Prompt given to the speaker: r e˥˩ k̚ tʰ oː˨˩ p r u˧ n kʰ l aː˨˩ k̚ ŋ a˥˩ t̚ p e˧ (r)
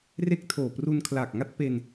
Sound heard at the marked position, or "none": n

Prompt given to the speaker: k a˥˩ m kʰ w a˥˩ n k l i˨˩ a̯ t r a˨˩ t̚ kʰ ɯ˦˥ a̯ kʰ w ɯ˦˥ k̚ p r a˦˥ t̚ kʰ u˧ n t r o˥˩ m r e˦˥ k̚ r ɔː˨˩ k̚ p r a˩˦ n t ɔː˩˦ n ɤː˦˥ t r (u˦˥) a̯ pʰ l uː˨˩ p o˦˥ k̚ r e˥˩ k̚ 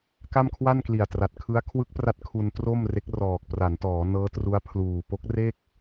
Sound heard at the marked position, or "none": u˦˥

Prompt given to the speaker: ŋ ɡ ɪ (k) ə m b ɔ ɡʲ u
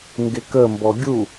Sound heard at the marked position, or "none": k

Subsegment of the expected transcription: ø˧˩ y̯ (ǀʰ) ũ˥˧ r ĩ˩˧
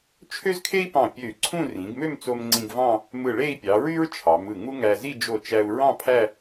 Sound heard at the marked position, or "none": ǀʰ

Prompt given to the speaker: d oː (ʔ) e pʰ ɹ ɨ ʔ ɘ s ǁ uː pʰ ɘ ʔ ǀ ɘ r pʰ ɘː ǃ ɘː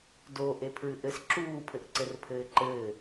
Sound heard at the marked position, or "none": ʔ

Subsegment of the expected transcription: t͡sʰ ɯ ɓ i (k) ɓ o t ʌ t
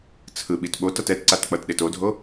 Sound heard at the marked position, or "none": t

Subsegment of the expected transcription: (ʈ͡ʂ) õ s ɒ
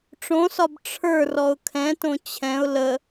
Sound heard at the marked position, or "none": ʈ͡ʂ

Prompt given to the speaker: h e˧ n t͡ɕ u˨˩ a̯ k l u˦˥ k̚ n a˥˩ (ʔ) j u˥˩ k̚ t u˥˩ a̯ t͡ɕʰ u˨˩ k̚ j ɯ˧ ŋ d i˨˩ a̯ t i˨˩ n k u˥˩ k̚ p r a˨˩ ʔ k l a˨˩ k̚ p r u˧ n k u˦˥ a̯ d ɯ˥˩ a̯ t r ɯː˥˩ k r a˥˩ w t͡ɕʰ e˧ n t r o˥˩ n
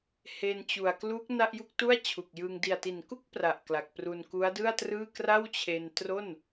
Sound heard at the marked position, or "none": ʔ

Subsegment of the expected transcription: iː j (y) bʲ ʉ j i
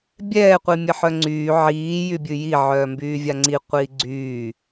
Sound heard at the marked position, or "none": y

